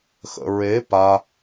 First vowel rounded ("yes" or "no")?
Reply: no